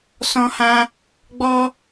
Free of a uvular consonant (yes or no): yes